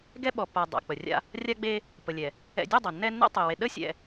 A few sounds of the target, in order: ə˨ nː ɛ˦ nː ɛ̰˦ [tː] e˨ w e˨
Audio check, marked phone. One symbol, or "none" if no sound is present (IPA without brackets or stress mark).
tˤ